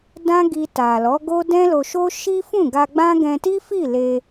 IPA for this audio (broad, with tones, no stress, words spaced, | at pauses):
dã˦ɡi˧ta˨lɔ˨˦ ɡo˦dɛ̃˦lo˧ʃo˦ ʃi˦fũ˦˨ɡa˧ɡ͡bã˦ ɡɛ̃˧ti˦fi˦˨le˧